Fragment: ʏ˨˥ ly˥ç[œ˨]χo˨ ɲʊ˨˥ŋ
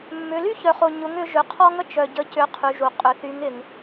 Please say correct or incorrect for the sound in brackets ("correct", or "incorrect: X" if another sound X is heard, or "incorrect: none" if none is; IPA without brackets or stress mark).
correct